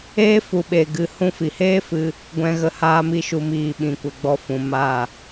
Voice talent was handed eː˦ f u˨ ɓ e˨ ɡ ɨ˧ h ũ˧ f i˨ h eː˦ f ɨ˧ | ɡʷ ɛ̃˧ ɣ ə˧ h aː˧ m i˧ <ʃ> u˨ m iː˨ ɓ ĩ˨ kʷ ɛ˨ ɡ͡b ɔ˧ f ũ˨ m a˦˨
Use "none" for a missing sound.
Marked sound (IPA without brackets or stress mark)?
ʃ